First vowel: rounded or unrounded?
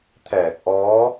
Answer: unrounded